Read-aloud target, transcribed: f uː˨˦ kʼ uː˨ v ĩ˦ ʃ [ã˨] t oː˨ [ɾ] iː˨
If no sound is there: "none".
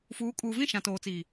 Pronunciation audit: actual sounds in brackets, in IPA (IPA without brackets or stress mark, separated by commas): ã˨, t͡s